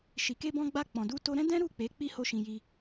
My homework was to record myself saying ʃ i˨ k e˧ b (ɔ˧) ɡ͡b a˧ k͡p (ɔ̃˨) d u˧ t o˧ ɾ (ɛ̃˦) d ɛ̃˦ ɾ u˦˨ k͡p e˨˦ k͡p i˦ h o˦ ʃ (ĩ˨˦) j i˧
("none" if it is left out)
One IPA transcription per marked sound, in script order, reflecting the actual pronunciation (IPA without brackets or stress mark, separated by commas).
ɔ̃˧, ɔ̃˨, ɛ̃˦, ĩ˧